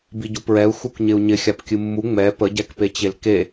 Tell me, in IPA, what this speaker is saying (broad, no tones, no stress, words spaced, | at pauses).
biɟupɹɛu̯ xukɲɪu̯ɲɪ xʲapkʲɨmːu ŋ͡mɛ pəɟɛkpet͡ɕel ke